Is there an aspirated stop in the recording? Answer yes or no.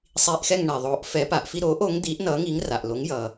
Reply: no